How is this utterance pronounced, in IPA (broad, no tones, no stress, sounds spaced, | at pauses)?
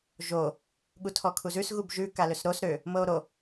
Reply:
ʒ o | ɠ u tʰ ɔ kʰ u z ʉ s ɣ u b ʒ ʉ k a l ø s ɾ o s ɾ ø | m ɤ o̯ ɾ o